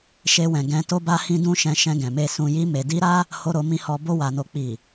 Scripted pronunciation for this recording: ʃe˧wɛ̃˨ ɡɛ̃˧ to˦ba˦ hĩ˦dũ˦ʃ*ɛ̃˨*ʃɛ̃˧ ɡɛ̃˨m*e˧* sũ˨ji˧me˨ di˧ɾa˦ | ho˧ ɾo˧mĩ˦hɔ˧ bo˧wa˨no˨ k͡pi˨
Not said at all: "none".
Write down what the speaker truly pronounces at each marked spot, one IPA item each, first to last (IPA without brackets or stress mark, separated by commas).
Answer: ɛ̃˧, e˧